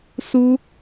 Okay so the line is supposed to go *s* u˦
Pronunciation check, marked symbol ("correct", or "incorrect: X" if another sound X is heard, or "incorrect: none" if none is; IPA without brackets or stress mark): correct